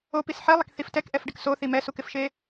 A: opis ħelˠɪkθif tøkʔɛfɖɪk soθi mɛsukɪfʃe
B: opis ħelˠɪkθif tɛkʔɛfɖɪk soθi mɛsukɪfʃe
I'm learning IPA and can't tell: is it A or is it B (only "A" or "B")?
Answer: B